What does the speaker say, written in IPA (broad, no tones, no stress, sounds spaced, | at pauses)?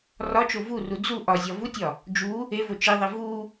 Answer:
r ɒ t͡ʃ o v u r u d͡z u ʔ ɒ zʲ ɒ v u tʲ ɒ | d͡ʒ u | e v o t͡ʃ i ðˤ e v u